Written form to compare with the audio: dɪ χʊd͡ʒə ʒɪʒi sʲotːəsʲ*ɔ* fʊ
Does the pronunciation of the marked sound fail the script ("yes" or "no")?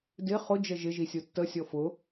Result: no